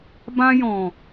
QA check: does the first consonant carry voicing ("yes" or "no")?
yes